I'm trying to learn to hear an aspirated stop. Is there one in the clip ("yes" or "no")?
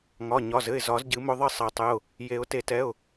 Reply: no